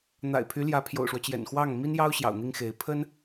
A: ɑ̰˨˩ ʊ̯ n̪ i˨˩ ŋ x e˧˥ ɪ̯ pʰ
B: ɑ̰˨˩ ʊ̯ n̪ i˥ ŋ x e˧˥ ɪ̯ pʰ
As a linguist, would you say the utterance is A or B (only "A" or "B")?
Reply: B